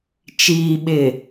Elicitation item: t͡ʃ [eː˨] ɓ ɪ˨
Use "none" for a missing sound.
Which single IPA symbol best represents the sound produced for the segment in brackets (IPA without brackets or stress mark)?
iː˨